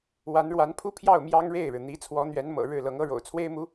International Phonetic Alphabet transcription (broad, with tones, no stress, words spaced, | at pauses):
wa˧˥nɻwa˧˥npʰu˥pʰjɑ˥˩ʊ̯ mjɑ˥ŋɻe˥˩ɪ̯ɻɻ̩˩ n̪i˧˥ t͡sʰwɔ˧˥n̪ɥɛ˧˥n mɤ̰˨˩ ɻɻ̩˥˩lɤ˧˥ŋɤ˥ ɻo̰˨˩ʊ̯t͡sʰwe˥ɪ̯mu˧˥